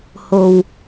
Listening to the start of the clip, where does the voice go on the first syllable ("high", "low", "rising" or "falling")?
low